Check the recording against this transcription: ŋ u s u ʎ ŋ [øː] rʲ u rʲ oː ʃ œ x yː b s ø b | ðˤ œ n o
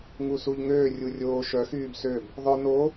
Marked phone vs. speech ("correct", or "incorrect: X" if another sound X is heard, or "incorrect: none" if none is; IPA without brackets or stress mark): correct